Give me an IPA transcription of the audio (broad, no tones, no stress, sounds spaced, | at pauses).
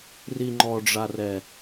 r i ŋ͡ǃ ɔ ɖ͡ʐ a r ɛ